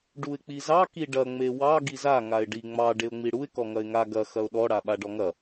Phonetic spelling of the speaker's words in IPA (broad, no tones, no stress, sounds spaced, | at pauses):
ɖ u ɪ̯ k͡p i z ɑ k i ɖ ɐ ŋ͡m e w ɑ ɡ i z a ŋ a ɪ̯ ɖ i ŋ͡m ɑ ɖ e ʊ̯ ŋ͡m i ɽ u ɪ̯ k ɔ ŋ ɐ ɪ̯ ŋ a ɡ ɐ x ɐ ʊ̯ ɗ ɔ ɽ a ɓ a ɖ ɔ ŋ ɐ